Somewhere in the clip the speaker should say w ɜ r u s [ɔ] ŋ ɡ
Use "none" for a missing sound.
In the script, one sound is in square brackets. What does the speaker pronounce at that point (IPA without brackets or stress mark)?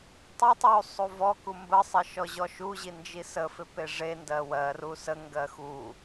ə